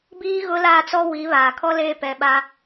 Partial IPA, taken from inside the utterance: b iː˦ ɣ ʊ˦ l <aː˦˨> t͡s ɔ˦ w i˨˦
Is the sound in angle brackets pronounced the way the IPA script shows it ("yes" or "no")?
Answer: yes